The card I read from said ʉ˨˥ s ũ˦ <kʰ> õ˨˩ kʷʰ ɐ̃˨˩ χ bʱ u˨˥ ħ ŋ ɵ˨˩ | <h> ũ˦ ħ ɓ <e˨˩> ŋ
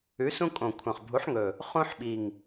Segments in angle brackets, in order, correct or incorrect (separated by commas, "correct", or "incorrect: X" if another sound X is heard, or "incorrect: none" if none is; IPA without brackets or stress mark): incorrect: kʼ, incorrect: χ, incorrect: i˨˩